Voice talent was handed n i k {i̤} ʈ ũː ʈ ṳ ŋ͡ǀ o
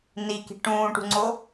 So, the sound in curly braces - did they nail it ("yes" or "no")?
yes